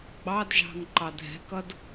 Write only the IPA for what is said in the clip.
ɡ͡bɑdʒɑ̤ŋ ǃɑdʱɛ̤kʌd

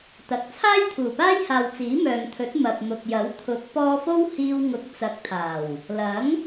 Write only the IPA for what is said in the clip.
t̪ɐ˨k̚ t͡sʰaː˥jt̪ʰuː˨˩paː˥jhaː˨w t͡siː˨˥mœː˨ŋt̪ʰɵ˨˥t̚ mɐ˨p̚ mʊ˨k̚jɐ˨˥w t̪ʰʊ˨˥k̚ pɔː˧fo˥w hiː˧wŋʊ˨˥k̚ t͡sɐ˨˥k̚t̪ʰaː˨˩w | lɐ˨˥ŋ

